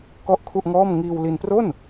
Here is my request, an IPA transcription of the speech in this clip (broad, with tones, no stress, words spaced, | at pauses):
kɔ˥˩ʔkʰu˥˩ʔŋɔː˥˩m ŋiː˧wli˧npro˥˩n